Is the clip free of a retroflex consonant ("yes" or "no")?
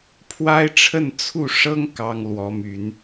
no